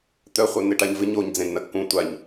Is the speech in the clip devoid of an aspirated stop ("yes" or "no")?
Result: yes